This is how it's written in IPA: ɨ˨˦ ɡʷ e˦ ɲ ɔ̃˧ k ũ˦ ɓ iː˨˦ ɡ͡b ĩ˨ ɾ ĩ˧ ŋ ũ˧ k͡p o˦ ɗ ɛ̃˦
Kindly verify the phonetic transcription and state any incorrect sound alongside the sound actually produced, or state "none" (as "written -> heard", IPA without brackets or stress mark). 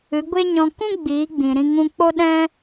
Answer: ɓ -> ɡ͡b